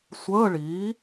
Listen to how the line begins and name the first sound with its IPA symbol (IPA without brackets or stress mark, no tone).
sʷ